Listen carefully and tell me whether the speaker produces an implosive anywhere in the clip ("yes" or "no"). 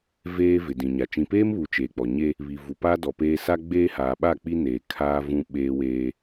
yes